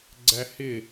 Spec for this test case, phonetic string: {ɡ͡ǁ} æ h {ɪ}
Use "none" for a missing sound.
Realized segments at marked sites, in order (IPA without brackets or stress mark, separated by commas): ɡ͡ǀ, ɪ